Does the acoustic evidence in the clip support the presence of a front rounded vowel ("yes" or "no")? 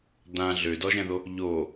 yes